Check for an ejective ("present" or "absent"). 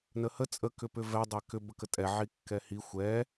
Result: present